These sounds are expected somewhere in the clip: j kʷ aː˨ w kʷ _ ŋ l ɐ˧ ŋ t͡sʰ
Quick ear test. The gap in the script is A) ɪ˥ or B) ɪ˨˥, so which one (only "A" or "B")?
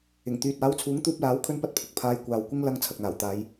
A